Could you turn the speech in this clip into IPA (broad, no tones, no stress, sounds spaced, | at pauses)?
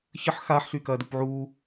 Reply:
ç ə ħ x aː ħ ɬ y k ɐː d u p ʕ u